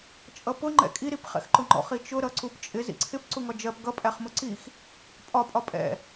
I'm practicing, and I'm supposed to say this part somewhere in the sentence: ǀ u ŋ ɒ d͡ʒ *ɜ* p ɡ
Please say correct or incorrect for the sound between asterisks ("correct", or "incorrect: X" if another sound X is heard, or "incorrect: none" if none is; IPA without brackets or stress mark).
correct